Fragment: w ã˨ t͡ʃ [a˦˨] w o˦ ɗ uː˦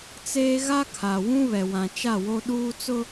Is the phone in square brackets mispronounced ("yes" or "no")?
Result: no